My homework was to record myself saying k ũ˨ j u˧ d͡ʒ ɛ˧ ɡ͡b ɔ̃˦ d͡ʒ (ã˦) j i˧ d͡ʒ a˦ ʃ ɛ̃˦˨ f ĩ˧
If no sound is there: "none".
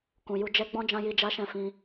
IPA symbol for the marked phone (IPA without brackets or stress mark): ã˦